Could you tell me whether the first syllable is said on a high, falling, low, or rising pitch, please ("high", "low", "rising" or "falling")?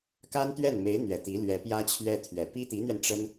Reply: high